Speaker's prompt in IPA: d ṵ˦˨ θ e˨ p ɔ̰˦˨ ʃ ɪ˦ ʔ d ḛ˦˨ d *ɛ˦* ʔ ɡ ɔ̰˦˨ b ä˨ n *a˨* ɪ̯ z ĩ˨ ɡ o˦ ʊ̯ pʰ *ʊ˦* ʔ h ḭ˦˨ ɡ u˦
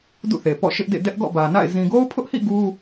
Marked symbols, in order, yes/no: yes, no, yes

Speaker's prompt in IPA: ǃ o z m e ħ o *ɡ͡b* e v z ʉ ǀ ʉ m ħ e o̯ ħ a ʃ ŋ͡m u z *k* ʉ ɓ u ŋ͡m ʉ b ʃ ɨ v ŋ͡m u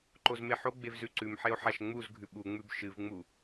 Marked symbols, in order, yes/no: yes, no

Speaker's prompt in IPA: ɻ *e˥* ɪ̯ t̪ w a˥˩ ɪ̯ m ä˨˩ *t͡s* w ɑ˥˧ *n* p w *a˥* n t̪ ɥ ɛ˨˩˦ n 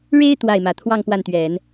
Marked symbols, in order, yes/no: yes, no, no, no

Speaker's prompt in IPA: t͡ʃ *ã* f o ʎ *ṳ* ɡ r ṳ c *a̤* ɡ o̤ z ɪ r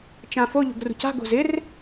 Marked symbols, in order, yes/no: yes, no, yes

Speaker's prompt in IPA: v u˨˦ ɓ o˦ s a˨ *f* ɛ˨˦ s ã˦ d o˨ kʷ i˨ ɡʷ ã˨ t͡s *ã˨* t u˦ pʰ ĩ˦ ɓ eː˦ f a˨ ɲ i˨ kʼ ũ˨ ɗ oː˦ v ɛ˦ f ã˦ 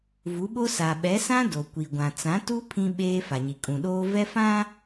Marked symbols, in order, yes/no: no, no

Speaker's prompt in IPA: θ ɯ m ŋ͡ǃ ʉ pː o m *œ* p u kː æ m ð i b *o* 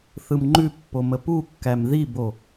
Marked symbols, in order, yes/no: no, yes

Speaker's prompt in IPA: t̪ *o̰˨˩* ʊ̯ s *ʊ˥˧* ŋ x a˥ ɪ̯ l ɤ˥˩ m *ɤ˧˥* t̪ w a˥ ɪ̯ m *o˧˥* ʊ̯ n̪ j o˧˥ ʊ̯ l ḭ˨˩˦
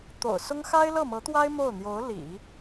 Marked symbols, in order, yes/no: yes, no, yes, no

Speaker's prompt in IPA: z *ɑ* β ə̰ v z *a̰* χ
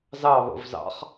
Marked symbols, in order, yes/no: yes, no

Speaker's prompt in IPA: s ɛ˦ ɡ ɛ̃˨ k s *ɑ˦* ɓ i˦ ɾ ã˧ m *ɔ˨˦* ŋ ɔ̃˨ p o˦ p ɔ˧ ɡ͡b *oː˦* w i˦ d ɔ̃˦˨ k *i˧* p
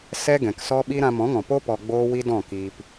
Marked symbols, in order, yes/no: no, no, yes, no

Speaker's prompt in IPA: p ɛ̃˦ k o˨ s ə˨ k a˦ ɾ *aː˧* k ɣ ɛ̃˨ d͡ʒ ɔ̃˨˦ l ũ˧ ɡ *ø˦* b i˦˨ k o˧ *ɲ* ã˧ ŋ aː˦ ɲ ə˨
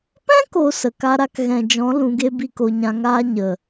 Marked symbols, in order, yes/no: no, no, yes

